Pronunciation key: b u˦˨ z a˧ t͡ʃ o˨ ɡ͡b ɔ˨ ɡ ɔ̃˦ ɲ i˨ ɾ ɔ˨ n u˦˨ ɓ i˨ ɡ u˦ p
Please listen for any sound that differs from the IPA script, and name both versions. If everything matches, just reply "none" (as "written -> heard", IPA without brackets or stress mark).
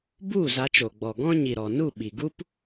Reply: none